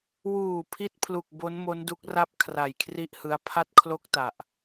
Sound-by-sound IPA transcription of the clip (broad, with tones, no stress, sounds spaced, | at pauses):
w uː˨˩ pʰ i˥˩ t̚ pʰ l u˨˩ k̚ b o˦˥ n m o˦˥ n d u˦˥ k̚ r a˥˩ p̚ kʰ r a˨˩ j kʰ r i˥˩ ʔ h ɯ˧ a̯ pʰ a˥˩ t̚ kʰ l o˥˩ k̚ t a˨˩ ʔ